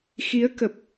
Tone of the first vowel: rising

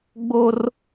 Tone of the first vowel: high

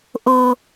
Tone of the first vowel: low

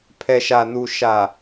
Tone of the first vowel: low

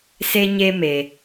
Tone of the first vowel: high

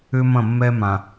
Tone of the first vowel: high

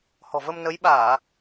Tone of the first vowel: low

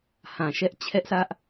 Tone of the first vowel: low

